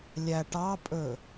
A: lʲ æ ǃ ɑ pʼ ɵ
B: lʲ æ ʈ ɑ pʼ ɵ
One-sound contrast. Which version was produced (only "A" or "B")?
B